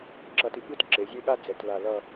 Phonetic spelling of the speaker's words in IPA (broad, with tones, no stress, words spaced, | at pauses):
ǁʌ˧ti˧ɠɯ˥t ǁe˩˧zʲe˥˧ɠa˥ d͡zɛ˩˧tla˧˩lʌ˥˧